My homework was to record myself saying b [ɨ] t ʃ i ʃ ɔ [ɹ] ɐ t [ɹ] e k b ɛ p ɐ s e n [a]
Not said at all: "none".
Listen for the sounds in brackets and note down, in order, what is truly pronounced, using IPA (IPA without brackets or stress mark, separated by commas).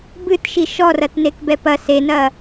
ɨ, r, n, ɐ